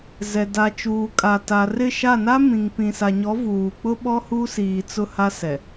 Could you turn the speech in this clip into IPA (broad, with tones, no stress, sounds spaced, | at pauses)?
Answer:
z ɛ˨ d a˨ t͡ʃ uː˨ kʼ a˨ t a˨ r ɪ˦˨ ʃ a˦˨ n a˦ m ĩ˨ ŋ p ĩ˨ s a˨ ɲ ɔ˨˦ v uː˨ k͡p ʊ˦ ɓ ɔ˦ h u˦ s iː˨ t͡s ʊ˦ h a˦ s ɛ˨